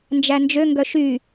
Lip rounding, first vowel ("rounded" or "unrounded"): unrounded